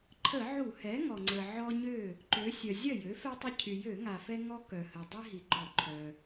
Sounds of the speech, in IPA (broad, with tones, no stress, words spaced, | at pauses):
ǃʰə˧˩˧ʕu˧˩˧hɛ˩˥ ŋɔ˩ŋ͡ǀə˩ ʕɔ˦ɲø˥˩ | ǃø˩˧ sʲœ˩zʲœ˥˩jø˩˥ fɛ˦tˤə˦ cʰy˩jø˧˩˧ŋa˩ fɛ˦ŋɔ˦ kœ˩hə˩dˤi˦ ɦi˩ɡ͡ǃɔ˧˩˧ǃʰœ˩